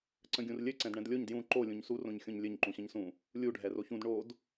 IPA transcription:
ǀ ə̃ ɡʲ ũ r lʲ ɘ ǀ ɛ̃ d ɳ ɛ̃ d lʲ o ɲ d j ũ ǃ o lʲ ũ ɲ s u r õ ɲ xʲ õ ɲ lʲ ɘ ɲ ǃ ũ ɕ ə̃ ɲ s ũ | lʲ u ɖʱ ɛ r o ç ũ d ɳ o d

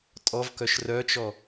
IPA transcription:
tʼ ɔ v k œ ʃ r œ t͡ʃ ɔ

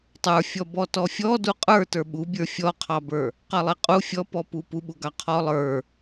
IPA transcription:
tˤ ə˞ fʲ ɔ b ɔ t ɔ fʲ ɔ d u qʼ ə˞ t ə˞ ɓ u bʲ ə˞ fʲ ɔ qʰ ɑ b ə˞ | q ɑ lˠ e qʼ u fʲ ɔ p ɔ p u p u ɓ u ɡ ɑ qʰ ɔ lˠ ə˞

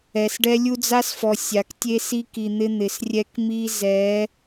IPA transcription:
ɛ˨ s ɖ ɛ˦ lʲ u˦ d͡z a˦ s f ɔ˨ sʲ a˨ k tʲ e˦ s i˦ k i˨ n̪ ɪ˦ n̪ ɪ˨ s rʲ ɛ˦ k m i˦ z ɛ˨˦

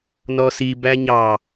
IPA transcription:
n ɔ s i b æ ɲ ɑ

